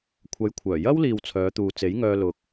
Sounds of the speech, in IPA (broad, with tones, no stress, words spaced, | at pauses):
kʷʰɐ˨˧jkʷʰœː˨˩jɐ˥wliː˨w t͡sʰœː˨˧t̪uː˨ t͡se˨˥jŋœː˧ lʊ˧k̚